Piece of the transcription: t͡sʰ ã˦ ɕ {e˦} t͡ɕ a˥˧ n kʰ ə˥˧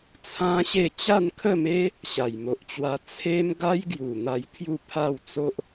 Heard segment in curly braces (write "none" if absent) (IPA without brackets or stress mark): e˥˧